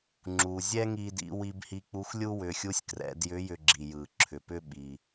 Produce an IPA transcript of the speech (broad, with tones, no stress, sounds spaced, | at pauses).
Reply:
ŋ͡ǁ u˩ zʲ ɛ˥ ŋ i˧ d ḭ˩˧ w i˧ b h i˧ k͡p u˧˥ x lʲ u˥ w ʏ˩˧ xʲ u˧˥ sʲ k r ɛ̰˩˧ d j ʏ˧˥ j ʏ˧ ɡ͡ǁ i˩ j ɯ˩ ǁʰ ʏ˩ p ʏ˥ ɓ i˩